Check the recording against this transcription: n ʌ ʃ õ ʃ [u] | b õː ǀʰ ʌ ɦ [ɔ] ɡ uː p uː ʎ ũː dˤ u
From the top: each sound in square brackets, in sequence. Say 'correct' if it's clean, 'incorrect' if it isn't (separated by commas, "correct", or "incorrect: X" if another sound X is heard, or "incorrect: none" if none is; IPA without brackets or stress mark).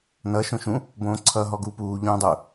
incorrect: ũ, correct